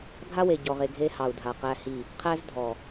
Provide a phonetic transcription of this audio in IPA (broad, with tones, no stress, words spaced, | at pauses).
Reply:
ɡʱa˦we˨ɟɔ˨ʁe˨ ɡʱe˦hɑ˨u̯dʱa˨qæ˦ hi˦˨ | qʰæ˦z dʱɔ˨